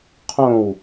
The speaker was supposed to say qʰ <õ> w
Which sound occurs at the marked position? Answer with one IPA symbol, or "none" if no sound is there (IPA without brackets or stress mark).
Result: õ